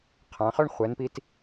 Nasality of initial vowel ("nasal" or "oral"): nasal